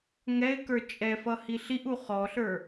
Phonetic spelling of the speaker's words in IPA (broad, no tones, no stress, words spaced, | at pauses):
ŋɛɪ̯kə˞ t͡ʃʼɛfʌ hiɬiʔu χɔɬə˞